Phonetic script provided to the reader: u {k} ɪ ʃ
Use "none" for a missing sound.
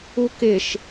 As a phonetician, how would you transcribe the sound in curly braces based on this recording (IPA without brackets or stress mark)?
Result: k